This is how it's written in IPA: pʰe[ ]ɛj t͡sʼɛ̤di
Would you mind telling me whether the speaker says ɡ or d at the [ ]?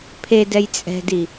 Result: d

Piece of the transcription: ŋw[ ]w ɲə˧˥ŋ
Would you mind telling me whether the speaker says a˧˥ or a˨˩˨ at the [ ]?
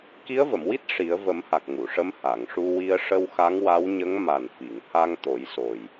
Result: a˧˥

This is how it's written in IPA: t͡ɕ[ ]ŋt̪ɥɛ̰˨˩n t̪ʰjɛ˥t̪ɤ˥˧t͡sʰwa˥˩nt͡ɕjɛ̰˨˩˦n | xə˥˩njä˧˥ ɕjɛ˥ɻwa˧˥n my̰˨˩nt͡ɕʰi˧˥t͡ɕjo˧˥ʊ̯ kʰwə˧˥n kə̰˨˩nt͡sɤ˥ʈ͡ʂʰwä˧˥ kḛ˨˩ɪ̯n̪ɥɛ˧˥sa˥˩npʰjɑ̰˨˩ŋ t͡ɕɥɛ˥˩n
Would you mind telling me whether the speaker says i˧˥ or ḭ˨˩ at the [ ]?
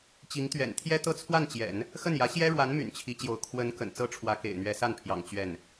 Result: i˧˥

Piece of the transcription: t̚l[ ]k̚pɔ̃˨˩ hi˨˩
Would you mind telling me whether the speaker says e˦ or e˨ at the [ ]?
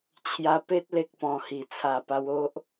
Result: e˨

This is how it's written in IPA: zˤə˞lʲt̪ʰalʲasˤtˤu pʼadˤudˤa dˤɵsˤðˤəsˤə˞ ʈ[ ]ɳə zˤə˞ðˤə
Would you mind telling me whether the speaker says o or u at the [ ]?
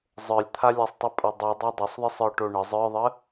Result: o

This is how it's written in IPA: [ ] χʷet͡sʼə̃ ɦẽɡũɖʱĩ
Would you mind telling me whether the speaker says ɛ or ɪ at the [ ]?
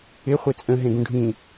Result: ɪ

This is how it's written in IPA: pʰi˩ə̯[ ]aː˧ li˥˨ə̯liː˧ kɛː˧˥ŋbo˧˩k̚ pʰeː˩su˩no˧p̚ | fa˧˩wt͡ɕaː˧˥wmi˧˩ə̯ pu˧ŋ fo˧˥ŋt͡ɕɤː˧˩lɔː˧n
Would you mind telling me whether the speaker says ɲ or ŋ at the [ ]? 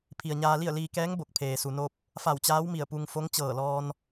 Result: ɲ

